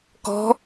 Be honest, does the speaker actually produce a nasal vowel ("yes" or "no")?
no